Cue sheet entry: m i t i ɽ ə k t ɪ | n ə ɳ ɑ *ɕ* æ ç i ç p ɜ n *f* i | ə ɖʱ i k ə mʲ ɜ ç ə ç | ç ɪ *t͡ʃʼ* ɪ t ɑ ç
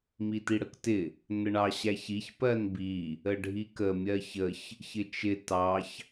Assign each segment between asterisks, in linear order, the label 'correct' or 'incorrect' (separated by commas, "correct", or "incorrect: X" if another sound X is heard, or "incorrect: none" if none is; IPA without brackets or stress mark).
correct, incorrect: b, incorrect: t͡ʃ